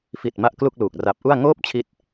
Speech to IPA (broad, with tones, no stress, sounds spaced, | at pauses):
f i˨˩ t̚ m a˥˩ ʔ k l u˥˩ k̚ l uː˨˩ k̚ r a˨˩ p̚ ʔ u˥˩ a̯ ŋ oː˥˩ p̚ t͡ɕʰ i˥˩ t̚